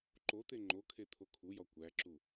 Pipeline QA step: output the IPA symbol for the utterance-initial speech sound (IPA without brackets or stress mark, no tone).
ǃ